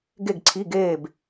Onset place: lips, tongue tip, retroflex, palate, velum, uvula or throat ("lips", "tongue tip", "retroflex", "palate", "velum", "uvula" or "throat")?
velum